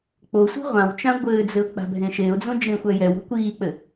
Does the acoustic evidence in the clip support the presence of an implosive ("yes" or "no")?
no